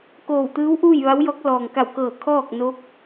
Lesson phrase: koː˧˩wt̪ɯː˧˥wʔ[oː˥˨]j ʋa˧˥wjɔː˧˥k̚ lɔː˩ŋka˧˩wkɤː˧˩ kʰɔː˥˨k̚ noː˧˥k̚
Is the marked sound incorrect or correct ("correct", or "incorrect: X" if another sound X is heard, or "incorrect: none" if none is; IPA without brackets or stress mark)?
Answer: incorrect: uː˥˨